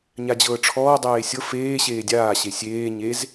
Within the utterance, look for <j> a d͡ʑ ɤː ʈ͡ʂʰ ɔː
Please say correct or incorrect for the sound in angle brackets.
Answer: incorrect